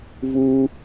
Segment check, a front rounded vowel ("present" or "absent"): absent